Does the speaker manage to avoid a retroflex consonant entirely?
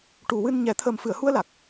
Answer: no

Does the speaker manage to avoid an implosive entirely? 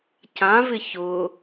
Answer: yes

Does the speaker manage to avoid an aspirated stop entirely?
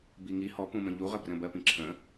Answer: no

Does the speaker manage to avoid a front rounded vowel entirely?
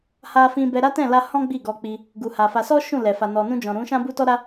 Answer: yes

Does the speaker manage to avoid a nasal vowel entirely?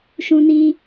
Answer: no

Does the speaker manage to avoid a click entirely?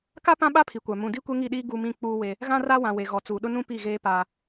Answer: yes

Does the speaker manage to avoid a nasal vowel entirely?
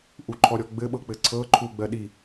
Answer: yes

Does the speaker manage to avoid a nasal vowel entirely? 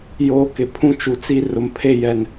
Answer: no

